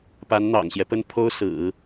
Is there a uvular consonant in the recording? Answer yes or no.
no